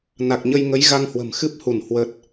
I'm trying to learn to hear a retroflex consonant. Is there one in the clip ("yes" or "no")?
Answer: no